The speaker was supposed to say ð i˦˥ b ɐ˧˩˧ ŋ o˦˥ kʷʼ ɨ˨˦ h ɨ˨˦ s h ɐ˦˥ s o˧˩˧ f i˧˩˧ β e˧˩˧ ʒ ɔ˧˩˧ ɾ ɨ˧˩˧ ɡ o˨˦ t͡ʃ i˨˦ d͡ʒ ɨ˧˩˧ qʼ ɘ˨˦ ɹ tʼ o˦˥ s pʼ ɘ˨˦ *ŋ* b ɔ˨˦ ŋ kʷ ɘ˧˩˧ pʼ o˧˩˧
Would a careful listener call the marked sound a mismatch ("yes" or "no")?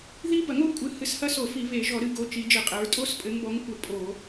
no